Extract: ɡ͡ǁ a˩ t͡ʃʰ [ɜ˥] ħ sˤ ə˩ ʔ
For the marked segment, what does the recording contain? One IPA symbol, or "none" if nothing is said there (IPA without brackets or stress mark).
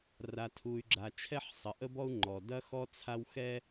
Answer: ɛ˥